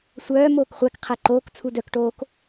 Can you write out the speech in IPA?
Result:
sʷ œː m oː k χʷ æ k qʰ æ ǃ oː k t͡sʰ u d œ k ʈ oː k

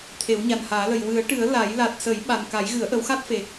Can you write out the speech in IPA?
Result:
t̪ʰ e˨˩˦ w ɲ a˨˩ n h aː˨˩˦ l ə˨˩ j w ɨ˨˩˦ ə̯ ʈ ɨ˨˩˦ ə̯ l a˨˩˦ j l a˨˩ t̚ s ə˨˩˦ j ɓ a˨˩ n k a˨˩˦ j ɣ ɨ˨˩˦ ə̯ ʔ ə˨˩˦ w x a˦˥ t̚ f e˨˩

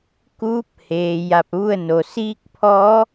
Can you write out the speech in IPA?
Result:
k uː˧˥ p̚ h eː˩ j a˧ p̚ ʋ u˥˨ ə̯ n o˩ s iː˧˥ k̚ pʰ ɔː˧˥

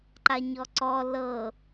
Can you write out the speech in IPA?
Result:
ǃ a ɲ ɔ ǀ ɔ l ɤ

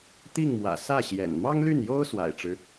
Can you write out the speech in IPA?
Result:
t̪ i˥˩ ŋ m w ä̰˨˩ s ä˥˩ ɕ j ɛ̰˨˩ n m ɑ˥ ŋ l y˥˩ n j o˥ ʊ̯ s w a̰˨˩ ɪ̯ ʈ͡ʂ ɻ̩˦

